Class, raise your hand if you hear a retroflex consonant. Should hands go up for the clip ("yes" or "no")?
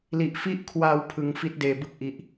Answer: no